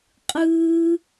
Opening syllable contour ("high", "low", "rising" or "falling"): high